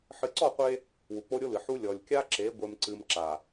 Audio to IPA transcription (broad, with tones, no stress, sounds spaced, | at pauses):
ħ ɨ˨ ǀ ɔ˦˨ qʷ e˦ | w u˨ k͡p o˦ ɾʲ o˦ l ɨ˨ ħ u˦ lʲ ɔ˨ lʲ kʲ a˦ ǁ e˨˦ ɡʷ e˦ m ǀ ɨ˦ m ǁ a˨